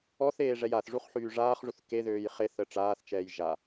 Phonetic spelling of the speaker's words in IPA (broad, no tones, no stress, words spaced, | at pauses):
ɔθeː ʐɛjaθʐuχ ħyːʐaːχʐuθ keðøːj χeθə ʈ͡ʂaːθt͡ʃɛːj ʒa